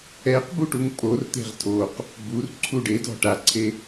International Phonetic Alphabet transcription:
ɛ q b u ʈ u ŋ pʼ o r t̪ e̤ ʁ tʰ o q | b u r ǀʰ u ɖ e d ɔ̤ ʈ a ǀʰ e

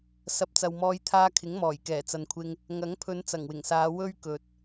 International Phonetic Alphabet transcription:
s ɐ˨ p̚ t͡s ɐ˨ w m ɔː˧ j t̪ʰ aː˧ kʰ ɪ˨˥ ŋ m ɔː˨˩ j k ɛː˨˩ t͡s ɐ˨ n kʷʰ ɪ˧ ŋ | ŋ ɐ˨˥ ŋ pʰ ɵ˨˧ n t͡s ɐ˨˩ ŋ w ɪ˨˩ ŋ s aː˨˧ w ɵ˥ ɥ k ɵ˨ t̚

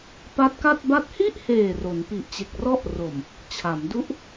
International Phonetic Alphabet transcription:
p a˦˥ t̚ k a˥˩ t̚ b a˥˩ t̚ h i˥˩ ʔ h eː˨˩ r o˩˦ n p i˨˩ ʔ t͡ɕ e˨˩ k̚ r ɔ˥˩ ʔ r o˨˩ m | t͡ɕʰ a˩˦ m d u˦˥ ʔ

